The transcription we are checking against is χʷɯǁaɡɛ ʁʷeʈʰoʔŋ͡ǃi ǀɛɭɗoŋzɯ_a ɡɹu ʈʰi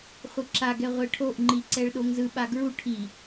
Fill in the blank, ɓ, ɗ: ɓ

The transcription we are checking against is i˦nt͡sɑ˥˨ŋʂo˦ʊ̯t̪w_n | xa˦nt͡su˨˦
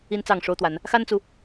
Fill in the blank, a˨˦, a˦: a˨˦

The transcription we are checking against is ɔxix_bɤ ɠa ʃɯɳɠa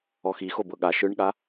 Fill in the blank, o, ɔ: o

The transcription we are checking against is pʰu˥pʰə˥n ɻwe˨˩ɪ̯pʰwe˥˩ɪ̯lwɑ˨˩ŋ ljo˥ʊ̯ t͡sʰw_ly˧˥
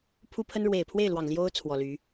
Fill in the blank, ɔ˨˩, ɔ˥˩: ɔ˨˩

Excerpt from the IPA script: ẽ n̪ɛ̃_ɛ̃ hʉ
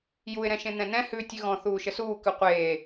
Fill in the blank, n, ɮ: n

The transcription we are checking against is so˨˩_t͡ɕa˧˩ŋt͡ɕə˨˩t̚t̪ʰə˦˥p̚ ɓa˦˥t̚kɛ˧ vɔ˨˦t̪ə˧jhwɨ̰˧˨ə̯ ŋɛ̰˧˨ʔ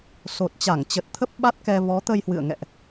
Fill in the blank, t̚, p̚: t̚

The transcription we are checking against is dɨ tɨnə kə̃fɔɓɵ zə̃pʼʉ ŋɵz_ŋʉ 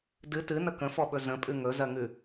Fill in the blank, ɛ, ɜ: ɜ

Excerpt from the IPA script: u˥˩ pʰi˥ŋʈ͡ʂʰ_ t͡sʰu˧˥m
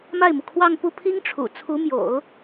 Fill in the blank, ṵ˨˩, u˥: ṵ˨˩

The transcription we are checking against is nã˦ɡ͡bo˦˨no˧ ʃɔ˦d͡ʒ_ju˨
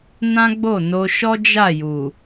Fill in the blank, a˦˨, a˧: a˦˨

